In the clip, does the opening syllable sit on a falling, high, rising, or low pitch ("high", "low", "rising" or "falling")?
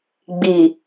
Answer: low